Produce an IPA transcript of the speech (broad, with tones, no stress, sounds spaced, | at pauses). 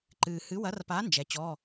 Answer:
ǃ ɨː˨ h ɨ˨˥ w ɐ˨˥ r p a˨˥ n d͡ʒ ɛ˨˥ t͡ɕ ɔ˧˥˧